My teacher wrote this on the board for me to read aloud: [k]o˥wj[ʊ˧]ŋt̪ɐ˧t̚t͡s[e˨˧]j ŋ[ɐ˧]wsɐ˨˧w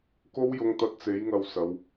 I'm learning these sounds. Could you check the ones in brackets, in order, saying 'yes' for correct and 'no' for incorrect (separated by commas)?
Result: yes, yes, yes, yes